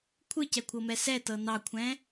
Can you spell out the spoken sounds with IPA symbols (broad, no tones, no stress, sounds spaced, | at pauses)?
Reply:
kʷʰ ɯ c ɛ kʷʰ ɤ m ɛ s ɛ t ɤ n ɑ kʷʰ ɛ̃